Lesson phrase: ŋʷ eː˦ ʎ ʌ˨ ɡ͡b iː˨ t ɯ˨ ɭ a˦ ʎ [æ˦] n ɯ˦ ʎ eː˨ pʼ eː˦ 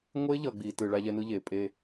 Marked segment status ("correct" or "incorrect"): incorrect